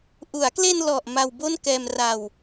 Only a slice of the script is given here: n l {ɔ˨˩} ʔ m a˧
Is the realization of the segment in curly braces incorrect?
no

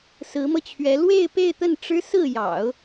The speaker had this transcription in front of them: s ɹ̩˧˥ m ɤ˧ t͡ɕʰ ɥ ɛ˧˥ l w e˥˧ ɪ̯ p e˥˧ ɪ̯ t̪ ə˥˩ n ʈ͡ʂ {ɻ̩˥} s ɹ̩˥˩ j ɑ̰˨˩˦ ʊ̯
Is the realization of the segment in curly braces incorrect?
no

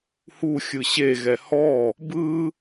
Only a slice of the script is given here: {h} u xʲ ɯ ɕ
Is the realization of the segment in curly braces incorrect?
no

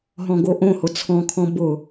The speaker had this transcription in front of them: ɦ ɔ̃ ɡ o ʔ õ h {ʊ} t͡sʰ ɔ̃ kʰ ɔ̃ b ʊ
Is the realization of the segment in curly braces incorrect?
no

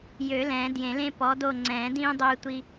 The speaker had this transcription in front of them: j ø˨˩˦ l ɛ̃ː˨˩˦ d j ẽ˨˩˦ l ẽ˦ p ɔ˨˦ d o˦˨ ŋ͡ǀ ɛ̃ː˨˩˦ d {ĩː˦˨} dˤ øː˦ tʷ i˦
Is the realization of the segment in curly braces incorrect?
yes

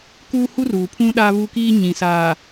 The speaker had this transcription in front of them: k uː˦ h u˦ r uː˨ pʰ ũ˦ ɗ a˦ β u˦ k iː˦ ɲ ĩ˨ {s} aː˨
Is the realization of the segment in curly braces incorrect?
no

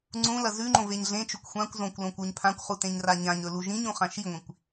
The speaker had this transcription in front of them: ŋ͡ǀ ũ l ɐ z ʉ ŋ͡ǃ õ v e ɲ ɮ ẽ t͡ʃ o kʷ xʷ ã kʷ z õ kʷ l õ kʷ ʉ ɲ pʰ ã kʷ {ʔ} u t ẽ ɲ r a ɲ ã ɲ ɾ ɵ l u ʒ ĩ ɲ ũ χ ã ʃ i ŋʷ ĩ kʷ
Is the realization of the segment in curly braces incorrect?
yes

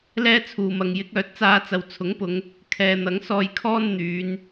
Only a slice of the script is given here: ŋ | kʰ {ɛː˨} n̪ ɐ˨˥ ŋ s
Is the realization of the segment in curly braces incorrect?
no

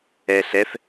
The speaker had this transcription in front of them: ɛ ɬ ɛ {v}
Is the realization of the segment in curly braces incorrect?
yes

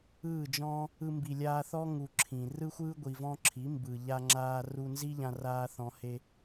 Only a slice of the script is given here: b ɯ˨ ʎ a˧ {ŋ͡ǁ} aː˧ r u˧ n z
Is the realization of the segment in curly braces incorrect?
no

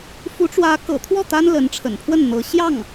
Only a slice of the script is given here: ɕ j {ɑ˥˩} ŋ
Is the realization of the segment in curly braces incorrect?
no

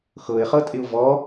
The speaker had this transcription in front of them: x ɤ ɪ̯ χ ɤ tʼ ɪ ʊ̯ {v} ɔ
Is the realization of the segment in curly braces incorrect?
no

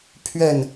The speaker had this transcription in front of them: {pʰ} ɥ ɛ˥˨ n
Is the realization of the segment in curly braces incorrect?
no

